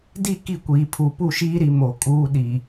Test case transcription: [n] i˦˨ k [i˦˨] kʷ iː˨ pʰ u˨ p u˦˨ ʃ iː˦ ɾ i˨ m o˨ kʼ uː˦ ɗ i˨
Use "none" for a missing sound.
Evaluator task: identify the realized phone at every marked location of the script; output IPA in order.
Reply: d, i˦˨

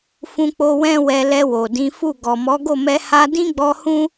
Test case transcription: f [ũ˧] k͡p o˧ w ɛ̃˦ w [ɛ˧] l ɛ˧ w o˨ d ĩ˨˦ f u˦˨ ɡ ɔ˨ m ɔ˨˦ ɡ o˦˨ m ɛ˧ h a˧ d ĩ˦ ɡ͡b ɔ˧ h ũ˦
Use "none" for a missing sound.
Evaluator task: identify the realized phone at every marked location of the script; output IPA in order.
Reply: ũ˧, ɛ˧

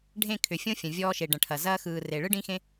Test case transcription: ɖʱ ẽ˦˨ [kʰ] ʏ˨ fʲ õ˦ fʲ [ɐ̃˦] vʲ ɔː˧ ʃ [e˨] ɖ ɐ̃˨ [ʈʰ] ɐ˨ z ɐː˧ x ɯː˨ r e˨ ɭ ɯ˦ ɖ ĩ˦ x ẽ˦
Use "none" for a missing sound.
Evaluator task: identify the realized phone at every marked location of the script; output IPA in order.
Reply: kʰ, ɐ̃˨, e˨, ʈʰ

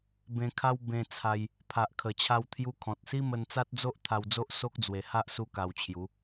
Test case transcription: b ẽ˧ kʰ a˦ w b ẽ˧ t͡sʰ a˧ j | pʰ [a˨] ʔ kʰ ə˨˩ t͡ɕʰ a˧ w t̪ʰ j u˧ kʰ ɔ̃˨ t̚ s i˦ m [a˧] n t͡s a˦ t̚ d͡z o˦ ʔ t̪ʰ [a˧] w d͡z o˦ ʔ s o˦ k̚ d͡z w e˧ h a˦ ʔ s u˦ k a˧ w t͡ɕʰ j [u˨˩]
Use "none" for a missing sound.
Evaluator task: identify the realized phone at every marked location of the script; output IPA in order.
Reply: a˨, ə˧, a˧, u˨˦

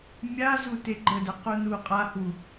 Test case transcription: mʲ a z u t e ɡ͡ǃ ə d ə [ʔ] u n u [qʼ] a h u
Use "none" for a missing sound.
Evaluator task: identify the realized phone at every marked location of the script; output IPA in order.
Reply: q, qʼ

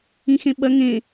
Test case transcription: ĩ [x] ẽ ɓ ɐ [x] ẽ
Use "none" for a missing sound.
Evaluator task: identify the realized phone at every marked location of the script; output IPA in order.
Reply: x, ŋ

